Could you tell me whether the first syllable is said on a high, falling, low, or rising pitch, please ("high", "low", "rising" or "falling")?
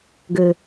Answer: low